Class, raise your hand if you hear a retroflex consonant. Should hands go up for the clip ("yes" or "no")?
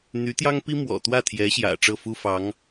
yes